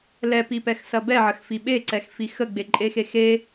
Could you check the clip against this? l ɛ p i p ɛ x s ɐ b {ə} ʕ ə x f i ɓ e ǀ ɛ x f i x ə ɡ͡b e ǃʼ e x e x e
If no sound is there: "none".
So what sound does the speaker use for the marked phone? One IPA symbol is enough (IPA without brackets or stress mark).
ɛ